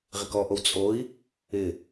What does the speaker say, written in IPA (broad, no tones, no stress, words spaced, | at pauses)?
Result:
ʁɪkɔʔow t͡sʼoi̯ | ɪ